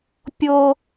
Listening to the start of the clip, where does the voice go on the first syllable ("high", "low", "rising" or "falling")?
low